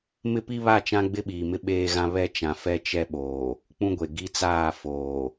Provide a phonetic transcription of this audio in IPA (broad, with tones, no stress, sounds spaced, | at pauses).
m ɪ˦ p i˦ β a˦˨ t͡ʃ ã˦ ɡ͡b ɪ˦ ɓ iː˨ m ɪ˦ ɓ eː˦ ɣ ã˦ β ɛ˦ t͡ʃ ã˨ f ɛ˦ t͡ʃ ɛ˦ ɓ oː˨ | k͡p ũ˦ ɡʷ e˨ ɡ i˦ t͡s aː˦˨ f oː˨